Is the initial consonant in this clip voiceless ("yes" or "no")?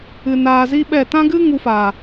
no